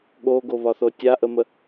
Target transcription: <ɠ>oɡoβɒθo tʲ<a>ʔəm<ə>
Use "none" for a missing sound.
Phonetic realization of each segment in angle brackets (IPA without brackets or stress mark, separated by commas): ɠ, a, ə